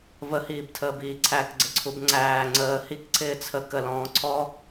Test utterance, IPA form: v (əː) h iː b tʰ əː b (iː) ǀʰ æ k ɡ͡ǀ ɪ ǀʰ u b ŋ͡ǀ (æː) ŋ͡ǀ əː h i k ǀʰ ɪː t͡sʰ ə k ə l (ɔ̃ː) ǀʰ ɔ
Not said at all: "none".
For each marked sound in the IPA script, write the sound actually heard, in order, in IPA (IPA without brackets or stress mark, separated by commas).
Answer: ə, iː, æː, ɔ̃ː